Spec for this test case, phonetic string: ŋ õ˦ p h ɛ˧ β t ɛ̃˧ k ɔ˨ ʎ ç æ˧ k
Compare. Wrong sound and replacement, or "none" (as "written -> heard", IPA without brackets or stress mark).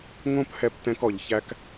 β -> p